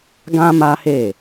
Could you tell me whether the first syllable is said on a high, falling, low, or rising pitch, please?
high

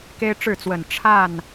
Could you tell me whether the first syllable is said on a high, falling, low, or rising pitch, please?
high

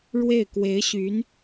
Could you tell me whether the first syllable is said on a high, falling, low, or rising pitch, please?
falling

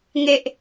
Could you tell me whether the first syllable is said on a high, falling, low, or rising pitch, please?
high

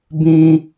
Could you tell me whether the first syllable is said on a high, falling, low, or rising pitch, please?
high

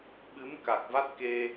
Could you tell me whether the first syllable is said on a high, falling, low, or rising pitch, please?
rising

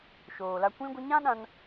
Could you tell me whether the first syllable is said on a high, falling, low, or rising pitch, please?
low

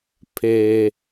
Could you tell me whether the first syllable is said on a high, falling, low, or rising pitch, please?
low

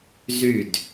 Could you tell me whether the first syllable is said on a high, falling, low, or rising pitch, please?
falling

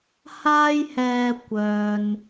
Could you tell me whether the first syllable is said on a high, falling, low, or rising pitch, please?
high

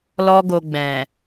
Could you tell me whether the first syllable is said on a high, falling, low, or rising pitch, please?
high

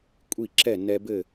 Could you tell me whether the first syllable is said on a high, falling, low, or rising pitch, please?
falling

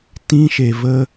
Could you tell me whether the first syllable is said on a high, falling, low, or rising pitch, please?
high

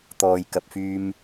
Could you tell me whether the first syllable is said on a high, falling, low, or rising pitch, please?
low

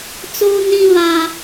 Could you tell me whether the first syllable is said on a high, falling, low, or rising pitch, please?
high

